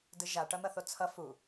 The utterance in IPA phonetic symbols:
dɯʒa ʈʌn̪ʌθot͡sʰʌ fu

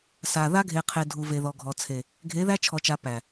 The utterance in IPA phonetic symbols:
sa˨ ða˦ɡʱe˨qʰe˨ dʱu˨ve˨ðɔ˨ ɡʱɔ˨ t͡sʰe˨ | ɡʱe˨˦ðæ˦t͡ʃʰɔ˨t͡ʃa˨ pæ˨

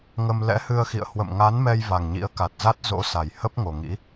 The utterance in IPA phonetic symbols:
ŋə˧m lɛ̰˧˥hɨ˧ə̯xḭ˧˨ə̯ hwə̰˧˨mŋa˨˦nmɛ˧j va˨˩ŋɲḭ˧˥ə̯ka˨˩t̚za˦˥t̚ zo̰˧˥sa˨˩j hə˦˥p̚ ŋo˨˩ŋḭ˧˥

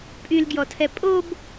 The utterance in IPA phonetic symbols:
pʼylɡjɔtʰɛ pʼob

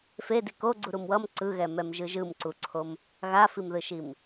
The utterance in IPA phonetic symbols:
fedi koɡ͡ǀuɾum wʌm ǀɯɣɛmɛmʒɯ ʒɯmǀuǀʰom | ɣafimðɯʃim

